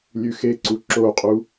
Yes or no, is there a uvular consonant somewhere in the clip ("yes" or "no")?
yes